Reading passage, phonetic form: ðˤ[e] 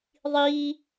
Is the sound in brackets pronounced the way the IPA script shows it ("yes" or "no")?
no